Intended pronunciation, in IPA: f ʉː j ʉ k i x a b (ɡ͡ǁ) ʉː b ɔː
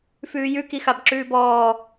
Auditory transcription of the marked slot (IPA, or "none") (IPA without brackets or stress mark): ǁ